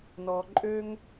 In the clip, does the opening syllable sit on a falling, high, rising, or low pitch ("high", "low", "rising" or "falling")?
low